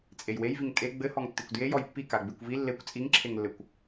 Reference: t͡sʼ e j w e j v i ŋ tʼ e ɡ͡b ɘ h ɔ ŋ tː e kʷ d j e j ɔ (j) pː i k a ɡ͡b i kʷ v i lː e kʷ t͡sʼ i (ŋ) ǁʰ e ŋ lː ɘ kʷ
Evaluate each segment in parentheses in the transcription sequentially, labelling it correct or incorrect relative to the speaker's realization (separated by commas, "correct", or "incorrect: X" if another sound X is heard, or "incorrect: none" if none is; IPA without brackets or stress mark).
correct, correct